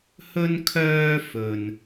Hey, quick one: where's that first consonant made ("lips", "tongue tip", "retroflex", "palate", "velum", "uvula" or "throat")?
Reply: throat